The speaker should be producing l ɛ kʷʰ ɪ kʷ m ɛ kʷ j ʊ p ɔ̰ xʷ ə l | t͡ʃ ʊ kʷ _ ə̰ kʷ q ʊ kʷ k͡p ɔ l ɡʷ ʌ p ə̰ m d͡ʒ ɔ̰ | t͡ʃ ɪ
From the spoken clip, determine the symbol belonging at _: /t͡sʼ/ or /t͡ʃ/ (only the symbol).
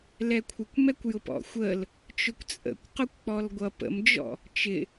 t͡sʼ